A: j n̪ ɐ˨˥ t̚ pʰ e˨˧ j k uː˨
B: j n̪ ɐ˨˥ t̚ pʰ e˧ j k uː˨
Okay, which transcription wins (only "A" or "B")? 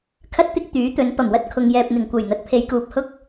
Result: A